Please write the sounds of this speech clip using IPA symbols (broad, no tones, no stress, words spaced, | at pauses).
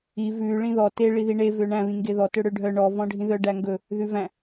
i vʉ ɭĩðɔ te ɭiðiɳe vøɳæ̃ βĩŋɡeðɔ tøɽøɖʱœ ɳɔ vɔ̃ɖʱĩðœ ɖæŋɡɵ | ðʉvæ̃